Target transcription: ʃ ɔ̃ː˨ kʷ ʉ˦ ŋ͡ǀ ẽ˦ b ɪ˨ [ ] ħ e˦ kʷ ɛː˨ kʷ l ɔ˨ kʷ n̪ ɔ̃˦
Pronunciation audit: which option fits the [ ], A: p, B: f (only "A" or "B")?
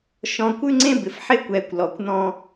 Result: B